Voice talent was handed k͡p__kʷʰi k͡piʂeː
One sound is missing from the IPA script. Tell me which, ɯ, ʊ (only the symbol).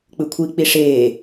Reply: ɯ